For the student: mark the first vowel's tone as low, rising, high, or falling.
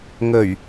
low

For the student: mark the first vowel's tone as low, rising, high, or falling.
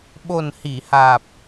low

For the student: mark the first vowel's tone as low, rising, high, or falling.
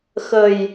low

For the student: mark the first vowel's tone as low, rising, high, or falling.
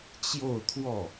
falling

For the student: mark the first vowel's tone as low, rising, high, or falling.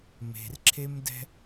low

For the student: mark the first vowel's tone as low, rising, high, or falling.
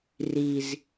low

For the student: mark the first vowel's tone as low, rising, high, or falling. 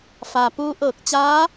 low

